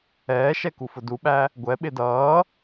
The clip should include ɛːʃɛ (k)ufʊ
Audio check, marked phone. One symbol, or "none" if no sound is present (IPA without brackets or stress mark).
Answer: k